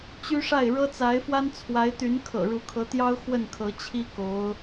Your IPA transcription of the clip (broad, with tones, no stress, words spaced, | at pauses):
t͡ɕy˥ʂa˥˩ɪ̯ ɻɤ˥t͡sa˧˥ɪ̯fwa˥n t͡sʰwa˧˥ɪ̯t̪y˧˥n kʰɤ̰˨˩ɻu˧˥ kʰɤ˧˥t̪jɑ˥ʊ̯ xwə˥˩nkʰɤ˧˥t͡ɕʰi˥ ko˧˥ʊ̯